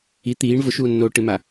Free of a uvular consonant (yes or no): yes